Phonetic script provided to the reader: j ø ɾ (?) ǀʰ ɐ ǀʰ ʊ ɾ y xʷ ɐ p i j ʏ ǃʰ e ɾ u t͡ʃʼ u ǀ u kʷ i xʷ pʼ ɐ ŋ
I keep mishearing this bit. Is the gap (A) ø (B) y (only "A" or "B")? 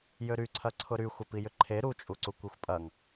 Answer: B